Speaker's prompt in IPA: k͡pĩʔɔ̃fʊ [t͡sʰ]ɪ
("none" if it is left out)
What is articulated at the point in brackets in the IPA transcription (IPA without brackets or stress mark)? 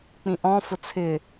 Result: t͡sʰ